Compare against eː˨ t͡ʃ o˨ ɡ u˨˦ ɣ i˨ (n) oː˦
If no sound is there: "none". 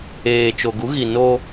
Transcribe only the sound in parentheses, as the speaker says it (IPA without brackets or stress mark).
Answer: n